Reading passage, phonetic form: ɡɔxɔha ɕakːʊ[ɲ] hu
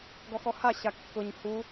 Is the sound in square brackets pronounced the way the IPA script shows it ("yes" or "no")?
yes